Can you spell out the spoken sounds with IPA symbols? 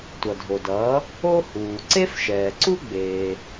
tʷ ʌ˩ dʱ o˩ d ʌː˩˥ | o˥ h uː˩ ǀ e˥ f ʃ ɛː˩ ǀ u˥ ɡ͡b eː˩

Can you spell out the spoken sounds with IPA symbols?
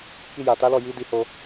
k i˧ j a˨ t a˨˦ l ɔ˦˨ j i˨˦ d i˦ h o˦

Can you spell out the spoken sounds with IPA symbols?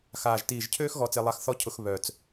x aː˨˩ ʒ t iː˨˩ ʒ cʰ øː˥ x ɣ ɔ˧ t͡s e˧ lˠ a˧˥ x θ ɔ˥ cʰ ʊ˧ x β œ˨˩ t͡s

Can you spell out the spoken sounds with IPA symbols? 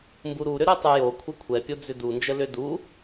m b u ɾ u ɾ ʏ ɾ o tˤ u j o kʷʰ ɛ kʷʰ ɛ pʲ o d͡z ʏ d u n d͡ʒ ə l ʏ d u

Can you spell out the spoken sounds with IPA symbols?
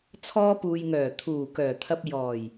t͡sʰ ɔː˧ p uː˨ j ŋ œː˨˩ t̪ʰ uː˨˩ k œː˨˩ t̪ʰ ɐ˧ p̚ j ɔː˨˩ j

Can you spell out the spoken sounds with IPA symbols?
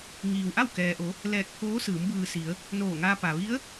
ŋ iː˩ w ʔ a˥˨ w k ɛː˩ ʔ o˩˧ | l ɛː˧˩ k̚ pʰ oː˧˥ s ɯː˩˧ m b ɯː˩ s i˩˧ ə̯ | n oː˧˩ ŋ aː˧ p a˩ ʋ i˧˥ ə̯

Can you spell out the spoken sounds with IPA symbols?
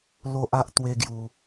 l o˦ ʔ a˦ ʔ t̪ w e˦ ɡ j u˧

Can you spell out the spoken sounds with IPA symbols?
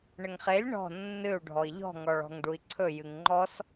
ɳ ə ŋ χ e lʲ ɳ ɔ̤ nː ɨ u̯ ɖʱ ɔ i̯ ʎ ɔ̤ ŋ ɔ ɭ ɔ̤ ŋ ɖ u i̯ ǀʰ ɵ j ɨ ŋ ŋ͡ǃ ɔ s

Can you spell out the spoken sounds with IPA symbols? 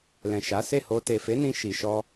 l ɛ̃˨ ʃ a˨˦ s e˦˨ h o˧ t e˨ f e˨˦ n ĩ˧ ʃ i˨ ʃ ɔ˧

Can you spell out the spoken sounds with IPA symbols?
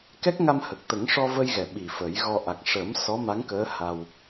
k ɛ˦˥ k̚ ŋ a˧ m h ə˨˩ k̚ t̪ ə˨˩˦ ŋ ʂ ɔ˧ v ə˧ j ɣ ɛ˨˩ ɓ i˨˩ f ə˨˩˦ j ɣ ɔ˧ ʔ a˨˩ k̚ ʂ əː˨˩˦ m s ɔ˧˥ m a˧˥ ŋ k əː˧˥ h a˧ w

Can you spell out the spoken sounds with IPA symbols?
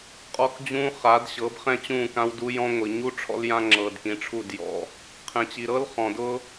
qʼ ɔ˦ k d͡ʑ ũː˦ χ a˨˦ d ɕ ɤ˨˦ b χ ɛ̃˦ t͡ɕ ũː˦˨ k ã˦ w d u˦ j ɔ̃˦ ŋʷ i˨ ɲ u˦ ʈ͡ʂʰ ɔ̰˦ l j ã˦ ŋ͡ǁ ɤː˨ d k ĩ˨˦ ʈ͡ʂʰ u˦˨ d j ɔ̰˨ | qʰ ɛ̃˨ t͡ɕ i˨ ɾ ɤ˦ l χ ɔ̃˨ d ʊ˦

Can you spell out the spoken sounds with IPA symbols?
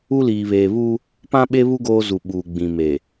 u˦ l iː˨ β eː˨ β uː˦ | p ã˦ ɓ e˦ β u˦ ɡ oː˦ z u˨ ɓ uː˨ ɡ͡b ĩ˨ m eː˨

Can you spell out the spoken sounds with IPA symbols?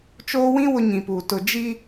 t͡ʃ oː˦ w ĩ˦ w ʊ˦ ɲ ĩ˨ p uː˨ t ʊ˨ d͡ʒ i˦

